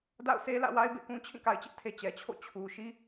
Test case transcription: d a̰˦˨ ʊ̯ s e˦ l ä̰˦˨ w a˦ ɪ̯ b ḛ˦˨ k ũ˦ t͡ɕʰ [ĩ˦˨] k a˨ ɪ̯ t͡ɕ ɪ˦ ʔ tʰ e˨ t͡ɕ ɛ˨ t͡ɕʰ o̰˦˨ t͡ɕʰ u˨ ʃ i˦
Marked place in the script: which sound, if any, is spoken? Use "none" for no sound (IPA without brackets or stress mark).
ĩ˦˨